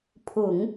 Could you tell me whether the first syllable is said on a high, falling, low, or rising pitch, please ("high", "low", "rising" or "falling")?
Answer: low